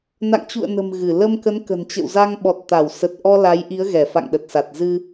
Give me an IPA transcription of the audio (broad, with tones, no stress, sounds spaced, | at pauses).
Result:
n a̰˧˨ ŋ t͡ɕ ṵ˧˨ ə̯ n ə̤˨˩ m ɣ ɨ˧˩ l ə˧ m k ə˨˦ n k ə̤˨˩ n t͡ɕ ə̰˧˨ w z a˧ ŋ ɓ ɔ˨˩ t̚ t̪ a˧˩ w s ə˨˩ t̚ ʔ ɔ˧ l a˨˦ j ʔ i˨˦ ə̯ ɣ ɛ˧˩ f a̰˧˨ ŋ ɗ ə˨˩ t̚ s a˨˩ t̚ z ɨ˧